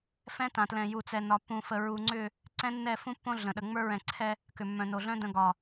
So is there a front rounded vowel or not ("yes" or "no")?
yes